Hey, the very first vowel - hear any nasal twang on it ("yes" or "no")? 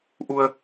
no